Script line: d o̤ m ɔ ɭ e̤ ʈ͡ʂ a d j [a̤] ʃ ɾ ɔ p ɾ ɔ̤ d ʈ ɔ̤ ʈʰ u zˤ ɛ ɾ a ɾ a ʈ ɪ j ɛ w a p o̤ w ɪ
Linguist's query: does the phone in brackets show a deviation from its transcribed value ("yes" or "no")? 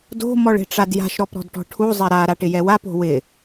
no